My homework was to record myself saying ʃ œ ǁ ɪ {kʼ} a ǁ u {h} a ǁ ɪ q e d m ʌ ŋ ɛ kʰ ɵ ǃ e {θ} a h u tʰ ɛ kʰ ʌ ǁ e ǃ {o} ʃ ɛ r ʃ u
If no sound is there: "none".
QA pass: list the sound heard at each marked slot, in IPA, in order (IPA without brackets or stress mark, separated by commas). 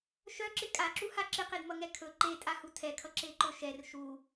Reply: kʼ, h, tʼ, ɵ